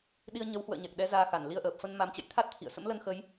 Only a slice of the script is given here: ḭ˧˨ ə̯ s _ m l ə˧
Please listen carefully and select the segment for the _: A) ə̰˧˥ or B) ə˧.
A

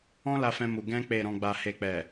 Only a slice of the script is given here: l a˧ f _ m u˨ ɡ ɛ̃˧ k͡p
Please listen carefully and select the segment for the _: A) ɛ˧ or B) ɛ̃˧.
B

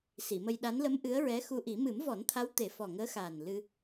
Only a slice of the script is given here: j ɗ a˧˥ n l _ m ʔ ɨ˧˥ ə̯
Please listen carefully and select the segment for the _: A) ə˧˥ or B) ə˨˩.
A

